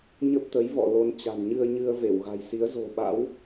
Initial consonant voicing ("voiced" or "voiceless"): voiced